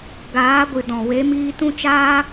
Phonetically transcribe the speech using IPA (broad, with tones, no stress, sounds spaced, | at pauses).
ɡ aː˨˦ ɡʷ ɨ˨ d ɔ̃˨ w e˨˦ m iː˧ t ũ˧ t͡ʃ aː˧